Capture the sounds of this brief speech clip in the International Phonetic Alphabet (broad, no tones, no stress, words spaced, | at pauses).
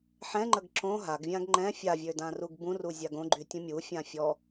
ħɛ̃ŋ͡ǃəɡ ǁõ ɦaɡvʲãɡ ŋ͡ǃɛ̃ fʲavʲødãruɡ bũruzʲaɡ õɡ͡ǃytʲũ mʲufʲã fʲɔ